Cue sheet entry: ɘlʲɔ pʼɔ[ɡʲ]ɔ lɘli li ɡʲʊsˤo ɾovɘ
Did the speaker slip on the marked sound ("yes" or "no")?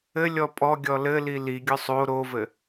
no